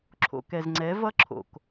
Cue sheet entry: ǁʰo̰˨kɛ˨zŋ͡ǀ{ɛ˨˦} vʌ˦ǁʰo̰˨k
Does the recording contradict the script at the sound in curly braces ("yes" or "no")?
no